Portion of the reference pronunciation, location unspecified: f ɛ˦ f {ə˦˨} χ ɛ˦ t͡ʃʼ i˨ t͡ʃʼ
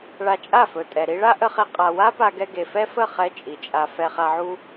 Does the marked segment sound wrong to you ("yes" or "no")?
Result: no